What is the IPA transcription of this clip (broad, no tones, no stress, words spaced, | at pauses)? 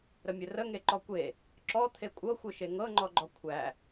ɾəmʲɘrəŋe ǃɔkʷe | ǁɔ t̪ʰekʷʼɤxʷɯʃe ŋɤŋ͡ǃɔɡ͡ǃɔ kʷʰæ